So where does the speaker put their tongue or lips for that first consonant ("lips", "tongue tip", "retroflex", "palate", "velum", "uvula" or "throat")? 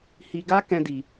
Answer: throat